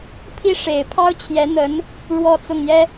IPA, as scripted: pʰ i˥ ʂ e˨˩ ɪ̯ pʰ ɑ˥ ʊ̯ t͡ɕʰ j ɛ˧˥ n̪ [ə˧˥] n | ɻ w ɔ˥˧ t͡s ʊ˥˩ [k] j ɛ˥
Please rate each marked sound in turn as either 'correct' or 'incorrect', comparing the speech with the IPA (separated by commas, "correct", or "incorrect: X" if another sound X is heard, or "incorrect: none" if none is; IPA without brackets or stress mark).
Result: correct, incorrect: ŋ